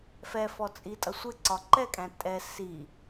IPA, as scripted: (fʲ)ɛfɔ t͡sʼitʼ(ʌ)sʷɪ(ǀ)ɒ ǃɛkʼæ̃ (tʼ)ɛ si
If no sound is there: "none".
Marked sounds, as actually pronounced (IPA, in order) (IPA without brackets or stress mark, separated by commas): f, ʌ, ǀ, tʼ